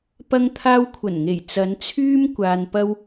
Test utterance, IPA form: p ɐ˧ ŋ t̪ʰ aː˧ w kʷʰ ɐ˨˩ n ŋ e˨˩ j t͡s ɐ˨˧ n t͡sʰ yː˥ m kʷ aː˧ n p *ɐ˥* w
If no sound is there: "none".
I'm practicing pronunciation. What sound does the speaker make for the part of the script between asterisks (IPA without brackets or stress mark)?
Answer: ɐ˥